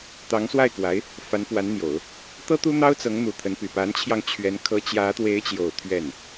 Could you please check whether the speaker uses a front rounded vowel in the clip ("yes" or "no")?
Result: yes